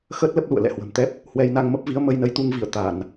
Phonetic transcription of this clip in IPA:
x əː˦˥ t̚ l ə˦˥ p̚ l ṵ˧˨ ə̯ l ɛ̰˧˨ h w ə̤˨˩ m t̪ ɛ˦˥ p̚ | h w ɛ˧ j n a˧ ŋ m ə˦˥ p̚ v i˨˦ ə̯ m ə˧ j n ə˧ j t̪ u˧ ŋ v i˧˩ ə̯ t̪ a˧˩˨ n

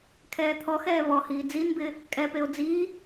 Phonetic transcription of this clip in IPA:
kʰ ɛː t̪ʰ ɔ x ɛː β ɔ h iː d͡z i n b ɪː | kʼ ɛ p e o̯ d͡z iː

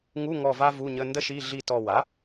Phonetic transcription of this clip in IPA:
ŋ u˧˥˧ ŋ ɔ˦˨ v a˥ v u˧˥˧ ɲ ə˧˥˧ n d ə˥ ʃ i˧˥˧ ɮ i˦˨ t ɔ˦˨ w a˩˥

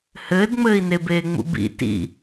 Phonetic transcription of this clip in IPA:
h ɘː d ŋ͡m ɘː i̯ n e b eː ŋ͡m ṵ b ḭ t ḭ

